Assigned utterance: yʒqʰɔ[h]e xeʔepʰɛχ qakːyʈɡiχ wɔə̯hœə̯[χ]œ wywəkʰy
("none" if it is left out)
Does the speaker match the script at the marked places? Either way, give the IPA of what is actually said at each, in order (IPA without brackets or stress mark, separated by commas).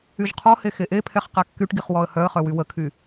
h, χ